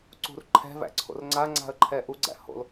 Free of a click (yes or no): no